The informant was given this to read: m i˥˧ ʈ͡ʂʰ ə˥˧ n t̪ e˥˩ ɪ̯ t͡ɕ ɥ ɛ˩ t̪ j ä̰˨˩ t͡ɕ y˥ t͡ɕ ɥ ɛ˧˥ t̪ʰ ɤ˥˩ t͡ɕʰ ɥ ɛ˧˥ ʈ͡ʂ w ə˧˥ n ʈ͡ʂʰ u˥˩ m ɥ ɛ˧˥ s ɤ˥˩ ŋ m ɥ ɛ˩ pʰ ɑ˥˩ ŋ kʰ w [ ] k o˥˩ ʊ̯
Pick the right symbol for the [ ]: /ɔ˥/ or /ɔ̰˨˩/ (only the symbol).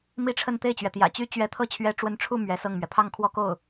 ɔ˥